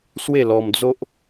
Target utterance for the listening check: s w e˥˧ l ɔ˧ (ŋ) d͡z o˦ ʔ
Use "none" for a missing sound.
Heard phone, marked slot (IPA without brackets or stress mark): m